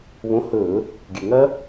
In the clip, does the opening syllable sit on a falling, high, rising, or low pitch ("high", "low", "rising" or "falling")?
rising